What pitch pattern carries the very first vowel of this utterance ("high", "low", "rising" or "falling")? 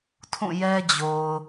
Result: falling